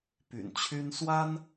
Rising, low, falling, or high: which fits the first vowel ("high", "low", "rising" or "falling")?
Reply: low